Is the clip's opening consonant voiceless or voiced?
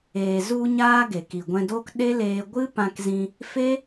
voiced